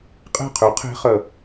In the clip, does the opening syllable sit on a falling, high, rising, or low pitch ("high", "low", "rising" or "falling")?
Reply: falling